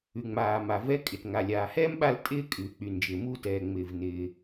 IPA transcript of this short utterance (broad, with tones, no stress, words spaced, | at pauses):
ʉ˩ŋ͡maː˩ ma˩vɛ˥ kʼɪ˩tŋa˩lʲaː˩hɛː˥m ɓa˥ltʼɪː˥kʼʉː˩ k͡py˩nd͡ʒɪː˩ muː˥tɛː˩ ŋ͡mɪː˩vnɪː˩